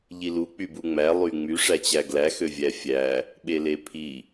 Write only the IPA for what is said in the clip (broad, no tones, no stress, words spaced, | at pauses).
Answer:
ʎilu k͡pybuŋ͡mæ lˠyŋ͡my ʂæt͡ɕæɡlæ xøvʲæfʲæ | ɓelepʰi